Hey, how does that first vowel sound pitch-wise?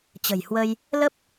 low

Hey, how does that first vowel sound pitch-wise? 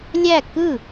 falling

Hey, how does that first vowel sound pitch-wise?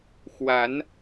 rising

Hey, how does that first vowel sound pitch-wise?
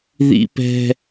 high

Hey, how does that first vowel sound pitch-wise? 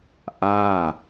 falling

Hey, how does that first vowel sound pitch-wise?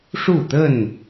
falling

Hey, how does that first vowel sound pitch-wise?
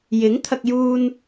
rising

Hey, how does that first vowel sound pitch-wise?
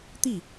falling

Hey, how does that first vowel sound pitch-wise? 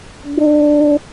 high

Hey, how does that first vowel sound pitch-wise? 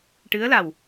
rising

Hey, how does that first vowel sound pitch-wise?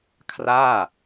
falling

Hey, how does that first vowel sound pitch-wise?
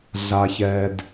high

